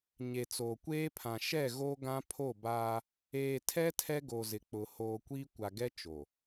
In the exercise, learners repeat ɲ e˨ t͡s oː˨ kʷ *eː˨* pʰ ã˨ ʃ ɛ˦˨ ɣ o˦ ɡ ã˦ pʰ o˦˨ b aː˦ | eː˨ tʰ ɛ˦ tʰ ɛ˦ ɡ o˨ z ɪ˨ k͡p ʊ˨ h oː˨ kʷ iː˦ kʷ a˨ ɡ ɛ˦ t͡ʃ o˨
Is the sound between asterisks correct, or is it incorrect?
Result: incorrect